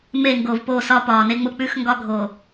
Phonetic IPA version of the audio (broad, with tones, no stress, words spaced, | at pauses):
me˦˨ŋɡo˨vpo˦˨sɒ˦ pɒː˨ne˦ŋ͡mʊ˦ k͡pʉ˦xŋɡɒ˦ɡʱo˨